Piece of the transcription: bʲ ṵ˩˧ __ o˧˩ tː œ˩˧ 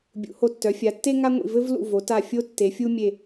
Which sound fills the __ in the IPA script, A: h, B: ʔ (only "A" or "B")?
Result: A